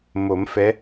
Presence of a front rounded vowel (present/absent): absent